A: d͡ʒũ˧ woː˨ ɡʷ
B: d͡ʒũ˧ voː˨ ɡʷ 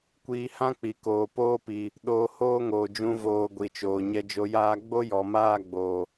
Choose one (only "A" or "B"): B